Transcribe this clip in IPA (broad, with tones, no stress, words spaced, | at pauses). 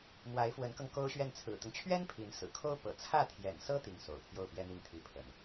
mwa˧˥ɪ̯fwə˧˥nkɤ˧ŋ ko˥ʊ̯ɕɥɛ˥˩n t͡sʰɹ̩˨˩t̪ʊ˦ŋt͡ɕʰɥɛ˥n pʰi˧˥nsɹ̩˨˩ kʰo˥ʊ̯pɤ̰˨˩ t͡sʰä˥˩t̪ʰjɛ̰˨˩nsɤ˥ t̪i˥˩ŋ so̰˨˩ʊ̯pʰjo˥˩ʊ̯pjɛ˥n̪i˥˩ŋ t̪ʰi˧˥pʰə̰˨˩˦n